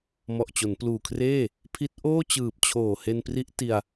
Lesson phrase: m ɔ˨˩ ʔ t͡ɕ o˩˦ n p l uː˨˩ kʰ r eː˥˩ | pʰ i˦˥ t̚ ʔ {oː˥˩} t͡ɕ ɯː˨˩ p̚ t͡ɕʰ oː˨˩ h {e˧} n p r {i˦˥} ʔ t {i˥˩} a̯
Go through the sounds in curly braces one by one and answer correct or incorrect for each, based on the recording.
correct, correct, correct, incorrect: i˧

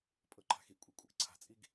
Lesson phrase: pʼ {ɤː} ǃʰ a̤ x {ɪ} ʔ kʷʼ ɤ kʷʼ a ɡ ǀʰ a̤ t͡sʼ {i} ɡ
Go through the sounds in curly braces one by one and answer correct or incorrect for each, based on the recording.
incorrect: ɤ, incorrect: i, correct

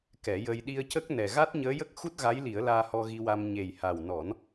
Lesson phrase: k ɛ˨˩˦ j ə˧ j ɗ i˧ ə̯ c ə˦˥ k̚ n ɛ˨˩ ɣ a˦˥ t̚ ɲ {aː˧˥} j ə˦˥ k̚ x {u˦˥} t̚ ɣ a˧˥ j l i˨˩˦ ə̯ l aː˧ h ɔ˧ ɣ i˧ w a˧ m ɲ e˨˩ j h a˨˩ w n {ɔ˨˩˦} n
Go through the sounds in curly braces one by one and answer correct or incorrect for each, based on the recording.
incorrect: əː˧˥, correct, correct

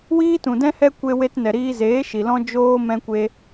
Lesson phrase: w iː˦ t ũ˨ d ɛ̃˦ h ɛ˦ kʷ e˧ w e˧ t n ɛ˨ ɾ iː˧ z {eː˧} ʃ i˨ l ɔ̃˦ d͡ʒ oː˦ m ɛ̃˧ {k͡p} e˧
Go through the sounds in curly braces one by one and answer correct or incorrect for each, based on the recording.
incorrect: eː˨˦, incorrect: kʷ

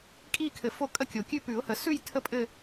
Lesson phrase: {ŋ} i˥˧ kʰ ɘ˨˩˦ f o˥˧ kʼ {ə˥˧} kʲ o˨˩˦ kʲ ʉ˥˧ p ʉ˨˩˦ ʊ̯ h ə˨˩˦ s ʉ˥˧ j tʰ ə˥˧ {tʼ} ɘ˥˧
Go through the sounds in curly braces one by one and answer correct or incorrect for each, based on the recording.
incorrect: kʼ, correct, incorrect: pʼ

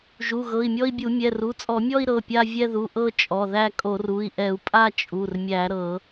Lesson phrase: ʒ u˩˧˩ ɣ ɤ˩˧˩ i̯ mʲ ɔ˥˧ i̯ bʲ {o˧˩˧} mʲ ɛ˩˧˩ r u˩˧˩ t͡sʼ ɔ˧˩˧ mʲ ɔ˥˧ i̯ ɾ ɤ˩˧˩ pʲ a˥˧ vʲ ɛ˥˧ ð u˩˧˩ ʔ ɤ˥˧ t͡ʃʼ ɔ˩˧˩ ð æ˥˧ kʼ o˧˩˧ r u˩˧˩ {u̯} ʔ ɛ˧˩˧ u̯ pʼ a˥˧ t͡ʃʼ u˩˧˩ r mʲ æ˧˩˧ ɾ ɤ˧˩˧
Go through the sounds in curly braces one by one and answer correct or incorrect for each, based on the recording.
incorrect: u˧˩˧, incorrect: i̯

